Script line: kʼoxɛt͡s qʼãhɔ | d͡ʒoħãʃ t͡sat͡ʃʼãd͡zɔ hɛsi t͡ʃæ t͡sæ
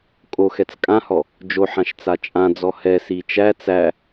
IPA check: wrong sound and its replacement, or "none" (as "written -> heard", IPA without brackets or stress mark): qʼ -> kʼ